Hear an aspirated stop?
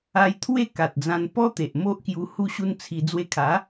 yes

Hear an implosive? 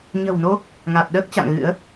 yes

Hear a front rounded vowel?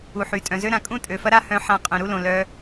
yes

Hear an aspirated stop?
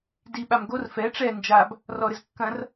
no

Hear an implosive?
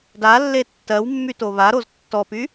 no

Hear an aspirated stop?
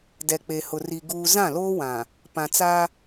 no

